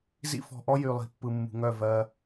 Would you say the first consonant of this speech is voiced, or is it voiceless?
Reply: voiced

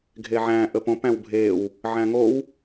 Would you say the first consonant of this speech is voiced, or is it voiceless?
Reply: voiced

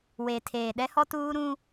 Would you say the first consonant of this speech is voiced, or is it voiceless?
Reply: voiced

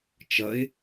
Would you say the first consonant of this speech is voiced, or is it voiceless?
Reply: voiceless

